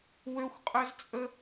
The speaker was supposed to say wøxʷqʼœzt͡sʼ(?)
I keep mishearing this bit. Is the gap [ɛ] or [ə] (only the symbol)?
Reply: ə